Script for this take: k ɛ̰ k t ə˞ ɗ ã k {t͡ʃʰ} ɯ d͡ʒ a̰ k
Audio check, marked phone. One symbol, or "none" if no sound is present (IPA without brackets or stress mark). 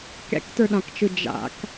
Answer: t͡ʃ